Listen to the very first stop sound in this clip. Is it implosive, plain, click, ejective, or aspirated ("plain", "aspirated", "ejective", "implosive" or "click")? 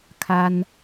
aspirated